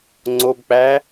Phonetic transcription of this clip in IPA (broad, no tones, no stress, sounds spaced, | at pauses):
ŋ͡ǀ o b k͡p æ